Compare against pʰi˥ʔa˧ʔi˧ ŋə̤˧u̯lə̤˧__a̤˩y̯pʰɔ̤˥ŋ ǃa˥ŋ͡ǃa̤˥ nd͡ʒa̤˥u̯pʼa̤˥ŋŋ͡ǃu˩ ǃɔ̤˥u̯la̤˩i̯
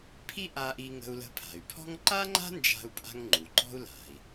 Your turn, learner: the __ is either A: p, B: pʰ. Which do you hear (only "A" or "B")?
B